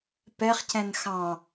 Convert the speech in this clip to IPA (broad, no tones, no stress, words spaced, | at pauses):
pɛχcɛ̃n xɑ̃